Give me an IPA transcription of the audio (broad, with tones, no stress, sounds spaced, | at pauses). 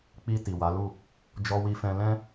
k͡p i˧ t i˨ w a˨˦ l u˦˨ | d͡ʒ ɔ˧ w i˧ f ɛ̃˧ l ɛ̃˧